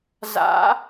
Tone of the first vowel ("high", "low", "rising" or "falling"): rising